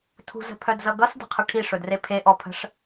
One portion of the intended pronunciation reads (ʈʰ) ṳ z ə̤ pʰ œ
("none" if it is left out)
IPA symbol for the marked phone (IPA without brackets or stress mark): tʰ